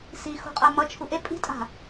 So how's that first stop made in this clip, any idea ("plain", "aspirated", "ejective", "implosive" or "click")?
ejective